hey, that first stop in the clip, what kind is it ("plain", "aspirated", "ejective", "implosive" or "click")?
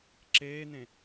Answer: click